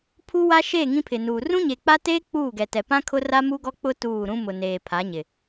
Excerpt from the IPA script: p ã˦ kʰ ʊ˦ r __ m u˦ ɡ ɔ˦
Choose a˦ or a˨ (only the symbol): a˦